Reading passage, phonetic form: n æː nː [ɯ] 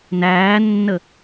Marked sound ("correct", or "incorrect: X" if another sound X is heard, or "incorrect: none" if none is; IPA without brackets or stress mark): incorrect: ə